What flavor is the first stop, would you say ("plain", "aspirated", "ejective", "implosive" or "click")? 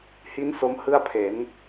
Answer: aspirated